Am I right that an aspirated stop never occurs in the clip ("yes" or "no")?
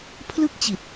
no